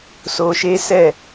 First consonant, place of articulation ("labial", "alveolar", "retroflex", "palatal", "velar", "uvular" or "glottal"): alveolar